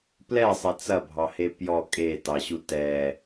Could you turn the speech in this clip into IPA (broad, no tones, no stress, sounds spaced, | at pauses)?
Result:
p l ɛ sˤ e t͡s ɐ bʱ ɑ h e p j ɔ kʼ e t ɑ ɕ u t ɛ